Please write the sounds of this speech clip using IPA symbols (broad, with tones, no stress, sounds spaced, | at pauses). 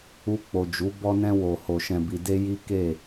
u˧ k͡p o˨ d͡ʒ u˨˦ b ɔ˧ n ɛ̃˧ w o˨ h o˨ ʃ ɛ̃˨ b i˨ d e˧ j i˦ k e˦˨